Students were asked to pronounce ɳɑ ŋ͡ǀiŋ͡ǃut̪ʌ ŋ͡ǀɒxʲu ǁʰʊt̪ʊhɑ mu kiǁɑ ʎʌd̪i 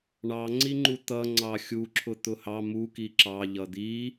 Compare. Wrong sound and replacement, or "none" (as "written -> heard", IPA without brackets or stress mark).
ɒ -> ɑ